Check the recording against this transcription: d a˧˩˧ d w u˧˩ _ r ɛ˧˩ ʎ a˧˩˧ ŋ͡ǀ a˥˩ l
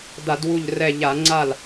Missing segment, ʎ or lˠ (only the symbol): ʎ